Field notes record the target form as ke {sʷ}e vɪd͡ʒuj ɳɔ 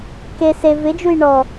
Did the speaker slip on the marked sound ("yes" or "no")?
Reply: yes